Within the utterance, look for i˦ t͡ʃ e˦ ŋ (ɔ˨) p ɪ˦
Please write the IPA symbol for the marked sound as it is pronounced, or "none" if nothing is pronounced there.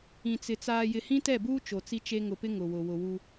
ʊ˨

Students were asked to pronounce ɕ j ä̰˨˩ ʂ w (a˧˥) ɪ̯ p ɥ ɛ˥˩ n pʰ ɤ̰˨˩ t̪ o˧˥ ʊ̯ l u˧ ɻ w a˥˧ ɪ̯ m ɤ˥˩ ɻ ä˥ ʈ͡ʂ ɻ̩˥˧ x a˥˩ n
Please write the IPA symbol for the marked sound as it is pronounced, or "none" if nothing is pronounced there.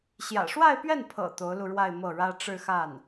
a˥˧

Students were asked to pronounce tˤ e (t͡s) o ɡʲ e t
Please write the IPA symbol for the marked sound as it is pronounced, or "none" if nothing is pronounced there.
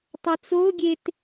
t͡s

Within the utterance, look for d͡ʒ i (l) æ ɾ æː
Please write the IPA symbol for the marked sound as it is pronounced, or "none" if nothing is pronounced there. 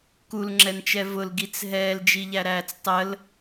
ʎ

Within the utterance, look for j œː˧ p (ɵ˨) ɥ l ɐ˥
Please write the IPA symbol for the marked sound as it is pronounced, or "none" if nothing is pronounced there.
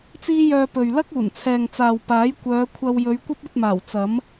ɵ˨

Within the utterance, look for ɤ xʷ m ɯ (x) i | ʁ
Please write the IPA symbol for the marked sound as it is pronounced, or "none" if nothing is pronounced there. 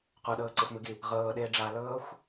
ɡ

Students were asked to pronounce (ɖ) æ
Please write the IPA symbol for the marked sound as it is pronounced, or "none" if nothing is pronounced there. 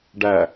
ɖ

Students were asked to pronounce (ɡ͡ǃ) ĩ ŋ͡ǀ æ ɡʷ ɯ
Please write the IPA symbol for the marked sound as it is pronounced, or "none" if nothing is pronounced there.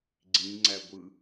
ɡ͡ǀ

